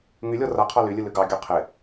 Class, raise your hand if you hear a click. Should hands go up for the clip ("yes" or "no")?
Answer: no